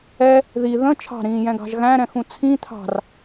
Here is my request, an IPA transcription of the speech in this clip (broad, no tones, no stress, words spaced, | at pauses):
ɛ | ði ðə̃ t͡ʃʰɑ̤ɾĩːjɛ̃ɡɑ̤ʒ ɣæ̃ɾɛ̃xũ t͡sʰĩ t̪ʰɑ̤r